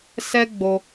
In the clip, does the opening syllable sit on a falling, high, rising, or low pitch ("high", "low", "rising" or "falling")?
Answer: high